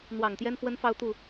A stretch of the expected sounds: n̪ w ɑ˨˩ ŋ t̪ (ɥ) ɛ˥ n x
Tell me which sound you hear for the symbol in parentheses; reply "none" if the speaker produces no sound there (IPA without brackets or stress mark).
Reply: j